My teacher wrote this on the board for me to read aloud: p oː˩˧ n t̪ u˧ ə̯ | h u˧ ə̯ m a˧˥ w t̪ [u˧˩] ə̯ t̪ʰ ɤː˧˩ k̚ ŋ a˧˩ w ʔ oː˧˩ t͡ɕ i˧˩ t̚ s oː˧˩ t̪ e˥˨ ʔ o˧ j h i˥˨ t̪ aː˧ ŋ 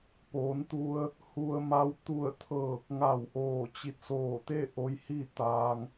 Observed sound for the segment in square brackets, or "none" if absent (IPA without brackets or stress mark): u˧˩